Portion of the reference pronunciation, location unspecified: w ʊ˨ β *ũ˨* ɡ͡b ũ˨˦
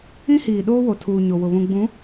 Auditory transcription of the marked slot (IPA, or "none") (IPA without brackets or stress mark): ũ˨